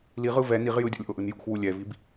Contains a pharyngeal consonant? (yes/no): no